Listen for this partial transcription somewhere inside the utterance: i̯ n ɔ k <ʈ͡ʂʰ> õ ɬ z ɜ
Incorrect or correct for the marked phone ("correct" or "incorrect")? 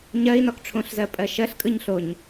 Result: correct